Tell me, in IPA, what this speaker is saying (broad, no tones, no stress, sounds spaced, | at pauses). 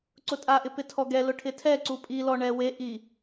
ǀ ʊ tʼ a ʔ ɪ p ɪ tʰ ɔ ɡ ɛ l ʊ ʈʰ ɪ tʰ ɛ ǀ u pʼ i l ɔ ɳ ɛ w e ʔ i